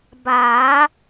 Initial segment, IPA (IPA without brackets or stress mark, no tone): b